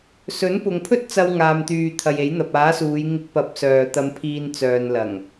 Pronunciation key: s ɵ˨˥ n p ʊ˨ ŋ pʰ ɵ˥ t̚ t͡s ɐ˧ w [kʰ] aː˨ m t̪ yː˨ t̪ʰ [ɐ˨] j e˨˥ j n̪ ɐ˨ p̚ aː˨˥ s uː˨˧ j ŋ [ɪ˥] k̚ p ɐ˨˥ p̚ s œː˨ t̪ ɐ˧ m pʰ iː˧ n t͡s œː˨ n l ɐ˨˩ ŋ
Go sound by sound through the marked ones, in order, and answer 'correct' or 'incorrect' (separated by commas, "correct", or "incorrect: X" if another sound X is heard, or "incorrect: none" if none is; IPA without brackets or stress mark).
incorrect: ŋ, correct, incorrect: ɪ˧